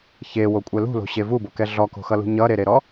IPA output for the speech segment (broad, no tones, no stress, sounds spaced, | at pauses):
ç e w o kʷʼ ɛ l ṳ l o̤ ɕ e v u b o k ɛ ɮ ɔ k o̤ x ʌ l ṳ ɲ ʌ ɾ e ɾ e ɾ ɔ